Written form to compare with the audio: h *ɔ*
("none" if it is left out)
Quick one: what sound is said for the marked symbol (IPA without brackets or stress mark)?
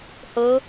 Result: ɤ